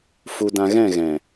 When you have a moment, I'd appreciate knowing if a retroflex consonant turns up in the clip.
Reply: no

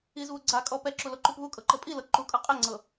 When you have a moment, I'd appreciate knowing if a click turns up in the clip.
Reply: yes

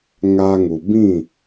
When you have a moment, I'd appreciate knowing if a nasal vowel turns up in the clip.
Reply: yes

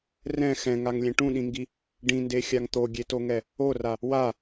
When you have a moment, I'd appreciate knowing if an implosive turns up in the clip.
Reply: yes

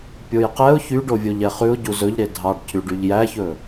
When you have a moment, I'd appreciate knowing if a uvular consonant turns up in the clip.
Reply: yes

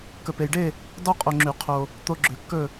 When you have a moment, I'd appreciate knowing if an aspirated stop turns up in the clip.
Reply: yes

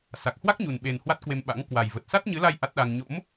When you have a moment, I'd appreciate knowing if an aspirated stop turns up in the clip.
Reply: no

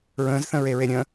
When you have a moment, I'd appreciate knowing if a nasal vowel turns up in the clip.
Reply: yes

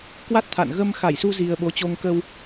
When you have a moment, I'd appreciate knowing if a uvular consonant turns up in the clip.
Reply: no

